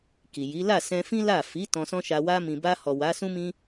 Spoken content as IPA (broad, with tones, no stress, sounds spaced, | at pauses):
k i˨ j i˨˦ l a˦˨ s ɛ̃˧ f ĩ˦ l a˦˨ f i˨˦ t ɔ̃˧ s ɔ̃˦ ʃ a˧ w a˧ m ĩ˨ b a˧ h ɔ˨ w a˨˦ s ũ˦ m ĩ˧